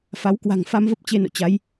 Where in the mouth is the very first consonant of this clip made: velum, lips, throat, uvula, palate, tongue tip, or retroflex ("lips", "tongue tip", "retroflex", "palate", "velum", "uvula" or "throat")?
lips